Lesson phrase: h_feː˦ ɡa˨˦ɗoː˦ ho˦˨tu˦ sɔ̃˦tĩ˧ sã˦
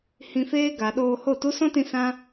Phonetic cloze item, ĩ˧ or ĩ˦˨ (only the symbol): ĩ˧